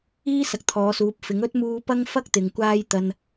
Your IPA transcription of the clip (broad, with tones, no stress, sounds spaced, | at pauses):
iː˥ s ɐ˨ k̚ t̪ʰ ɔː˨˧ s uː˨˥ p̚ f ɪ˨˥ ŋ ɵ˥ t̚ m uː˧ p ɐ˥ ŋ f ɐ˥ k̚ t̪ ɪ˨ ŋ kʷ aː˥ j t̪ ɐ˧ n